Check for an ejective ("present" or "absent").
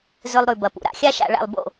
absent